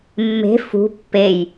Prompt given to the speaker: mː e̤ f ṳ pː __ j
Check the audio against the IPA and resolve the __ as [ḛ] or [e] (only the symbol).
e